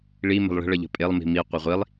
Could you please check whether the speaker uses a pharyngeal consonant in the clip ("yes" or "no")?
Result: no